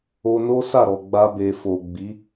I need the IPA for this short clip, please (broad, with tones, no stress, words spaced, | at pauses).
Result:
o˧no˦ sa˦˨ɾɔ˨ ɡ͡ba˧be˨ fo˨ ɡ͡bi˨˦